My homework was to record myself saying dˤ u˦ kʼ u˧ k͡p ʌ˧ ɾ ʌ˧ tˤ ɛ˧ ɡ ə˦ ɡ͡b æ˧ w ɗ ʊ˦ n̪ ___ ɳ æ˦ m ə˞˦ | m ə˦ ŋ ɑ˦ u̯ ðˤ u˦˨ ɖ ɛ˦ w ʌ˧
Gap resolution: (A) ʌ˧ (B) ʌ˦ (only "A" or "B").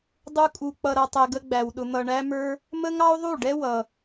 B